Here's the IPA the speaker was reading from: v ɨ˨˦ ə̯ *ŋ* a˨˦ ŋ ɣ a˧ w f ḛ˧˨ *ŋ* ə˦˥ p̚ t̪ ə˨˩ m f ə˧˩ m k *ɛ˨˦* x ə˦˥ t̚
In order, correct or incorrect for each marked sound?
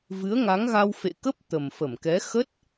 correct, incorrect, correct

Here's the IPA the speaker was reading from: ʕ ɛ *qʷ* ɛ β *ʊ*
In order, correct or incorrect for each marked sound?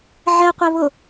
correct, correct

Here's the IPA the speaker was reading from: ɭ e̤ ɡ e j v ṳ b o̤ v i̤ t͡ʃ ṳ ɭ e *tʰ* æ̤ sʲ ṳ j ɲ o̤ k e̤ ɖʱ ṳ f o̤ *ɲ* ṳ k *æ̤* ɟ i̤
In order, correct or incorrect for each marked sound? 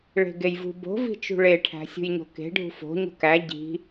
incorrect, correct, incorrect

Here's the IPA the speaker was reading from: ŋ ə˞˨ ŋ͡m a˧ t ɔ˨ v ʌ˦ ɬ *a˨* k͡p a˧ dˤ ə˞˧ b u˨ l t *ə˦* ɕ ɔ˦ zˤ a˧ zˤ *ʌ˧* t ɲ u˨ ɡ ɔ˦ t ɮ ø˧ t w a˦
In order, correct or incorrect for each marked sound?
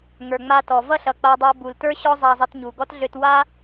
incorrect, incorrect, correct

